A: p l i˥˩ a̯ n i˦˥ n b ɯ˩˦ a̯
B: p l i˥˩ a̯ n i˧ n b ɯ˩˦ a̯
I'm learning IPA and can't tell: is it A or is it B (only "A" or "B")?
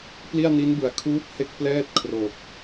A